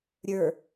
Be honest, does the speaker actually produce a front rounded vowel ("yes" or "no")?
no